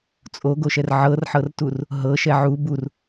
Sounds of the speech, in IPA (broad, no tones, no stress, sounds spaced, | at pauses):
t͡sʼ o ɡ o ʃ ɛ r ʕ ɤ r ħ ɤ r t u r | ɦ ɤ ʃ ɛ ʕ u b u r